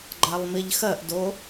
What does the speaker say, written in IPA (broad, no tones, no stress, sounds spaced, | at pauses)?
ɡ͡ǃ a lˠ m i ʎ x ɜ ʔ d o